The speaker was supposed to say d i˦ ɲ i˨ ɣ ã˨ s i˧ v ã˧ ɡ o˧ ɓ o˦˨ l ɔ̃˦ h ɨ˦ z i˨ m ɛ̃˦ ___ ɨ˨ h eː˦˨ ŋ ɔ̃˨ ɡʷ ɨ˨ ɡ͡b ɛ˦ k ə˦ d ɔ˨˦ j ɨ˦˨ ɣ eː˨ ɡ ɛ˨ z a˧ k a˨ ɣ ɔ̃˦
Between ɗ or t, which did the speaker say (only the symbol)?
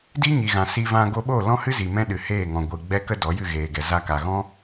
ɗ